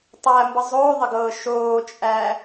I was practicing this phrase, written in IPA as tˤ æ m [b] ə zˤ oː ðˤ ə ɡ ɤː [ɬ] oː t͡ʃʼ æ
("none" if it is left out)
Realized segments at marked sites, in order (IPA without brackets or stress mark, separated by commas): b, ʃ